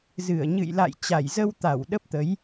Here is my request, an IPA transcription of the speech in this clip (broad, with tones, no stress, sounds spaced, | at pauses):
z ɨ˧˩ ə̯ ɲ ɨ̰˧˨ j l a̰˧˨ j t͡ɕ a˧˩ j z ə˧ w t̪ a˧˩ w ɗ ə˦˥ p̚ t̪ ə˨˦ j